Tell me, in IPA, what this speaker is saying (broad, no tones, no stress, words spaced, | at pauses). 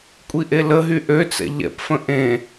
kʷʼiʔeləɦy ʔøt͡sɛ̰ ʎɛ̰pfə̃ ʔẽ